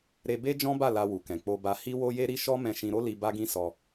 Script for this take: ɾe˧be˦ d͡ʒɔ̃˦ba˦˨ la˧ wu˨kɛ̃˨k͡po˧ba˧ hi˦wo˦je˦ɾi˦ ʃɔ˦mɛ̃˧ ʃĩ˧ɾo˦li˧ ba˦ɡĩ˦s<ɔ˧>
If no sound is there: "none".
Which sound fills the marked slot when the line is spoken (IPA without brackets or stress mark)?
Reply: ɔ˧